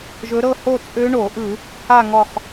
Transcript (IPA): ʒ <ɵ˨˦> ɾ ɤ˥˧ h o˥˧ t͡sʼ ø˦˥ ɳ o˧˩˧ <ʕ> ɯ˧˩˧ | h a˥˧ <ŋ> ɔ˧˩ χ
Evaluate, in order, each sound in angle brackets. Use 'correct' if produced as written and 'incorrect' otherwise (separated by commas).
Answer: correct, incorrect, correct